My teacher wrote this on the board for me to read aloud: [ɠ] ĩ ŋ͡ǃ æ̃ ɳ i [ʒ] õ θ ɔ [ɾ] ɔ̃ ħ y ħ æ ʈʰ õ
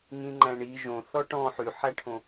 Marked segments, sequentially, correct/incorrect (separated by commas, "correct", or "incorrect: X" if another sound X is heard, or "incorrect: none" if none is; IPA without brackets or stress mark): incorrect: ŋ, correct, incorrect: ʈ